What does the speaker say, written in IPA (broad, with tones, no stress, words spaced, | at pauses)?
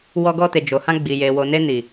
wɔ˧ɡɔ˧te˨ d͡ʒo˨hã˧ ɡ͡bi˨je˨ wo˨ne˧ni˨